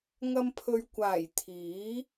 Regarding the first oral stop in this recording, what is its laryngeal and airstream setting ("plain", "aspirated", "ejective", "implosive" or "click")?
aspirated